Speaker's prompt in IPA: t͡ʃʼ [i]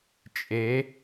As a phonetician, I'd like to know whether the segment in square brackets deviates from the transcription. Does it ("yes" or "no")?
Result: yes